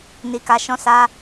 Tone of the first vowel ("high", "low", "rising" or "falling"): low